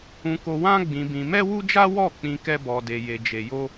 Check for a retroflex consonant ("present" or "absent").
absent